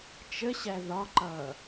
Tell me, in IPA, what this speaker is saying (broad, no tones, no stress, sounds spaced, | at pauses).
t͡ʃ ə ɕ æ ð ɒ ǃ ʌː